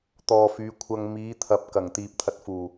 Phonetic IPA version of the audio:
t̪ɔː˨fyː˨˧ kʷʰɐ˧ŋ miː˨˧t̪ʰɐ˨p̚ kɐ˨˩ŋt̪iː˨p̚t̪ʰɐ˧t̚fuː˨˩

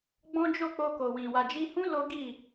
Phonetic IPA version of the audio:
ɡ͡bɔ̃˦d͡ʒo˦˨ k͡po˧ko˨wĩ˨ wa˨d͡ʒi˧hũ˦ lo˦ɡi˦˨

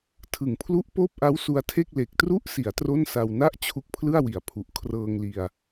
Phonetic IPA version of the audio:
tʰɯ˩˦ŋpʰlu˦˥ʔ poː˥˩p̚ʔa˦˥w su˧a̯tʰe˥˩k̚ le˨˩k̚tru˥˩ʔsi˩˦a̯ tro˥˩nsa˧w na˥˩ʔ t͡ɕʰu˦˥k̚pʰlɯ˥˩a̯wi˩˦a̯pʰu˨˩ʔ kʰrɤː˧ŋli˧a̯

